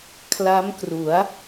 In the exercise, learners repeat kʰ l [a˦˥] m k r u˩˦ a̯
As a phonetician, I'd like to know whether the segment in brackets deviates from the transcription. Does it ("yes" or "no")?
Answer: no